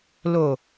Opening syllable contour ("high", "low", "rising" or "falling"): low